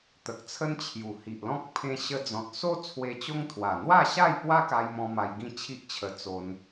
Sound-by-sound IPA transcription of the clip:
t̪ ə˨ k̚ t͡sʰ ə˦ n t͡ɕʰ j u˨˩ h i˨ ʔ l ɔ̃˦ k̚ pʰ ẽ˧ ɕ ə˧ d͡z ɔ̃˨ t̚ s o˦ t͡sʰ w e˧ t͡ɕ o˦ ŋ t̪ʰ w a˨˩ n̪ w a˥˧ ɕ a˥˧ j p w a˦ k a˧ j m ɔ̃˧ m a˧ j ɡ ĩ˥˧ t͡ɕʰ i˦ ʔ t͡ɕʰ ə˧ t͡s o˧ n

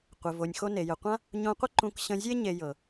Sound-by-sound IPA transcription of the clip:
qʷ ɪ˩ v o˩ nʲ x o˧ n e˩ j ə˩ qʷ ã˥ | ɲ õ˧ qʷ ɪ˥ ǃ ũ˧ k ɕ ə̃˧ zʲ e˥ ɲ e˧ j ɤ˩

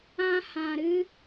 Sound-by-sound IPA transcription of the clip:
ã˦ h ã˧ ɾ ɨ˦

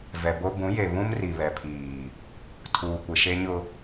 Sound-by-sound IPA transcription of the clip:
v ɛ˨ b o˦ b ũ˨˦ j e˨ β ũ˦ m r i˨ β ɛ˨ pʰ iː˨ | tʰ uː˨ kʷ ɪ˨ ʃ e˦ ɲ ʊ˦

